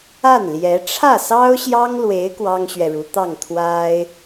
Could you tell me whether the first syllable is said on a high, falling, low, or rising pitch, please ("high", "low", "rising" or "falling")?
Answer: falling